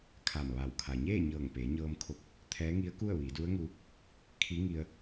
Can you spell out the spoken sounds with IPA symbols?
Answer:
kʰ a˧˩ m ʋ a˧˩ w kʰ a˩ ɲ eː˥˨ ɲ ɤː˧˩ ŋ p eː˩˧ ɲ ɤː˧ m kʰ o˧ p̚ | t̪ʰ ɛː˧˥ ŋ i˧˥ ə̯ k u˥˨ ə̯ ʋ iː˩˧ d u˧˥ ə̯ ŋ u˧ | kʰ i˧˥ ŋ i˧ ə̯

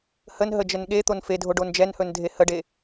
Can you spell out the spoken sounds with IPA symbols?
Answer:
h ə n ɦ ə d͡ʒ ə n ɠ e t̪ o n f e dʱ o ɖ o n d͡ʒ ɛ n h ɵ n dʱ e h ə ɖ e

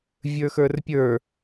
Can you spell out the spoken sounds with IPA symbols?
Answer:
vʲ ə˞ x ə˞ r pʲ ə˞

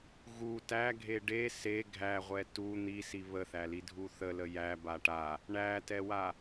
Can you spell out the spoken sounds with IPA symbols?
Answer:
ɣ u t æ ɡʱ e ɖ e s e ɡʱ æ ʁʷ ɛ t u n̪ i s i β ə θ æ l i dʱ u θ ə l ə j æ b a ʈ a | ɳ æ t ɛ w a

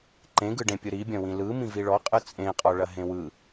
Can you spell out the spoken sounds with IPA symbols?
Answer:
ǃ ẽ ɡ ɯ ɖ ẽ pʲ ɯ ɾ i bʲ ɐ̃ w ĩ l ɯ m ĩ v i ɭ ɔ qʼ ɯ t͡sʼ ẽ qʼ ɔ ɭ ɐ ɦ ẽ w ɯ

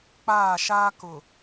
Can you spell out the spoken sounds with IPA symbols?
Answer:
k͡p aː˦˨ ʃ aː˦ k ʊ˨

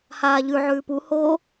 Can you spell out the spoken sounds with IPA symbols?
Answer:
h aː ʎ ʉ ʕ ʉː p u h o

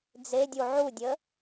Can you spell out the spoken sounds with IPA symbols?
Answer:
d͡z e dʲ u ʕ u dʲ ə

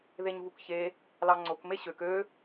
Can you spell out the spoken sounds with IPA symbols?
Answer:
ð e ɲ v u k ç e | l ɑ ŋ͡ǀ o k m e ɕ ø k ø

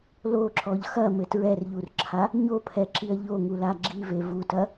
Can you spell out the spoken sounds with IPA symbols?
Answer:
l o ǁ ɔ ʎ x ɐ m ɘ t ɹ ɛ r ʎ u r ǁʰ a | ɲ o pʰ ɛ ǁ i ɐ̯ ʎ o ŋ u l a ɡ͡ǁ i v e v u t ɐ

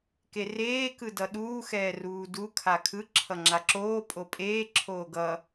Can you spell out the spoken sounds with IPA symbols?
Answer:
k e r eː k ɯ d ʌ ɗ uː x ɛː r uː d u kʰ a kʰ ɯ ǁʰ ʌ ŋ͡ǁ a ǁ oː pʼ o pʼ eː ǁʰ oː ɡ ʌ

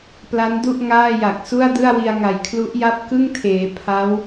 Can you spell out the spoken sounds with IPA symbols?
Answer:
p l a˦˥ n d u˥˩ ʔ ŋ aː˥˩ j a˨˩ k̚ s u˥˩ a̯ d ɯ˥˩ a̯ w i˧ a̯ ŋ a˨˩ j kʰ l u˦˥ ʔ j a˥˩ p̚ k ɯ˥˩ ŋ tʰ eː˩˦ pʰ a˦˥ w

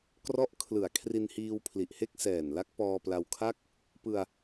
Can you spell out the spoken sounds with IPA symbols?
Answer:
k r ɔ˦˥ ʔ kʰ l ɯ˨˩ a̯ kʰ r i˧ n h iː˧ w pʰ l i˨˩ ʔ h e˥˩ k̚ s ɛː˨˩ n l a˦˥ k̚ p ɔː˧ p l a˧ w kʰ a˥˩ k̚ | p ɯ˧ a̯

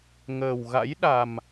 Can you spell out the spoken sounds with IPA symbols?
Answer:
ŋ əː˨˩ w ɣ a̰˧˥ j ɗ a˨˩ m

